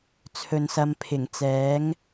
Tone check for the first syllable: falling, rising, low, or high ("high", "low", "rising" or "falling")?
low